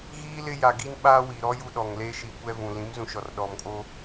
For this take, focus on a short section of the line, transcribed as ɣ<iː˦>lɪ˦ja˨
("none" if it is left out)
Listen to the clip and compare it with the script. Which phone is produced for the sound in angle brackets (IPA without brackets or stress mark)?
iː˦